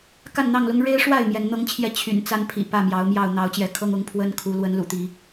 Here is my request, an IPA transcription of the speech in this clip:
k a˥˨ n n̪ ɑ˥˨ ŋ l ʊ˦ ŋ ɻ e˦ ɪ̯ ʂ w a˥˨ ɪ̯ m j ɛ˨˦ n n̪ ɤ˦ ŋ t͡ɕʰ j ɛ˦ t͡ɕʰ y̰˨˩ n t͡s a˦ n pʰ ḭ˨˩ p ä˥˨ m j ɑ˨˦ ʊ̯ m j ɑ˥˨ ʊ̯ n̪ ɑ˨˦ ʊ̯ t͡ɕ j ɛ˨˦ kʰ ɤ˦ ŋ ʊ˨˦ ŋ pʰ w ə˦ n kʰ u˨˦ l w ə˨˦ n l ṵ˨˩ t̪ i˨˦

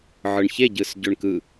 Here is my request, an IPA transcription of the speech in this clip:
ʕ ɯ ɳ ç e ɟ ɯ s ɟ ø ɳ k ɯ

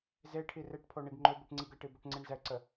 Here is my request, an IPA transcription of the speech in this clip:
z e ʈʰ i r e ʈ pʰ o ɳ i ɡ ŋ͡ǃ o b i ʈ ŋ͡ǀ i ɡ ə ʈ i b o ʈ ŋ͡ǀ i ɳ z ɛ ǀ ə

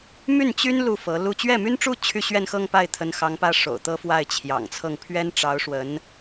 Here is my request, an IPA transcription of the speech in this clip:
m y˥˩ n t͡ɕ y˥ n l u˥˩ f ɤ˧˥ l u˥˧ t͡ɕ ɥ ɛ˥˩ m y˥ n ʈ͡ʂ u˥ t͡ɕʰ y˥˧ ɕ ɥ ɛ˥˧ n x ɤ˥˧ ŋ p a˥˩ ɪ̯ t̪ʰ ə˧˥ n x ɑ˧˥ ŋ p ä˥ ʂ o̰˨˩ ʊ̯ t̪ ɤ˥ f w a˥˩ ɪ̯ t͡ɕʰ j ɑ̰˨˩ ŋ t͡sʰ ɤ˥˩ ŋ pʰ ɥ ɛ˥ n ʈ͡ʂ ɑ˧˥ ʊ̯ ʂ w ə˧˥ n

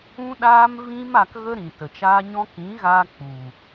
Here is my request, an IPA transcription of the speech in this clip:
ũ˦ ɗ aː˦ m v ĩ˦ m a˧ k ɣ ə˦ ɾ ĩ˨ t ə˨ t͡ʃ aː˦ ɲ ɔ̃˦ k ĩ˨˦ ɣ a˧ k͡p u˨

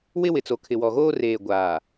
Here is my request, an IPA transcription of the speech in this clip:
w ɪ˦ w ɪ˨ t͡s o˨ kʰ ɪ˨ w ɔ˨ ɣ oː˦ r eː˨ ɡʷ aː˨

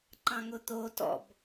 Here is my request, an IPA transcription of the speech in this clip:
ǃ ɑ̃ ŋ ʊ t̪ o t ɔ̰ b

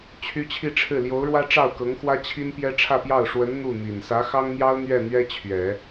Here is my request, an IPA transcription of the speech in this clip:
t͡ɕʰ y˥ t͡ɕʰ i˥˧ ʈ͡ʂʰ ɻ̩˥˩ l j o˧˥ ʊ̯ ɻ w ä˥ ʈ͡ʂ ɑ˥˩ ʊ̯ k ɤ˧˥ ŋ x w ä˥ t͡ɕʰ i˥ n p j ɛ˥ ʈ͡ʂʰ ä˥˧ p j ɑ˥˩ ʊ̯ ʂ w ə˧˥ n n̪ u˥˩ n̪ i˨˩ n s ä˧˥ x ɑ˥ ŋ n̪ j ɑ˥ ʊ̯ n̪ ɥ ɛ˥˩ n̪ ɥ ɛ˥ t͡ɕʰ ɥ ɛ˨˩˦

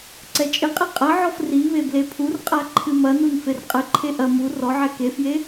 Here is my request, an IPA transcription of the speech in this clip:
ǀ ɛ t͡ʃʼ ɘ qʼ e qʼ ɐ ʕ ɔ f r i β e b l e pʰ u r qʼ a ǃʰ ɨ m ɐ n u n f e r qʼ ɘ ǃʰ e ʔ ɐ m u r ɔ ʕ ɛ k e f j e

